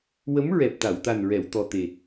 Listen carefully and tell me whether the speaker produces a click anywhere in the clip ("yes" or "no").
no